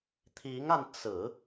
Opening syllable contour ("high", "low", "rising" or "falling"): rising